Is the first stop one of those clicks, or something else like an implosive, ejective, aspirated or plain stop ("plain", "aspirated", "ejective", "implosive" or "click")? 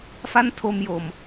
aspirated